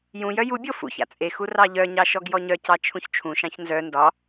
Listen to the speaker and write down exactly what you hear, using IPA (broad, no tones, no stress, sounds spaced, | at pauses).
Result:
j ũ j œ j u bʲ o f ṵ ç a̰ t͡sʼ e x u r ɑ ʎ œ ɲ ɑ ʃ ɔ ɡ j ɔ ɲ œ c ɑ t͡ʃʰ ũ ç t͡ʃʰ ũ ʃ ɑ̃ ç n z œ n d ɒ